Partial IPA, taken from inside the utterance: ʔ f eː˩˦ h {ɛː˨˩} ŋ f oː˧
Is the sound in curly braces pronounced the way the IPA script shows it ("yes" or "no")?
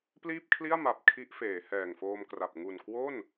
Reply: yes